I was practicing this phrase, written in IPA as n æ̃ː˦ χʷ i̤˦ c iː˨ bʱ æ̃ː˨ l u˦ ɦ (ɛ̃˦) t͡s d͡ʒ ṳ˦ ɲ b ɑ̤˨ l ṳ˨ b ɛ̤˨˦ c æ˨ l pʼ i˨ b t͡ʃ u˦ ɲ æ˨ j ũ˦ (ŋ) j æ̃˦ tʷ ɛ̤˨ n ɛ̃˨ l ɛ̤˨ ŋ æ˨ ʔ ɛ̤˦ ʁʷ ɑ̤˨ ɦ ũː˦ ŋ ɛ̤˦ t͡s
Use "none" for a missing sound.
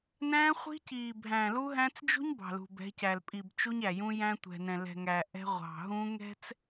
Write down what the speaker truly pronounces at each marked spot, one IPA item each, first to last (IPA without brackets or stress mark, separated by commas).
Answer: æ̃˦, none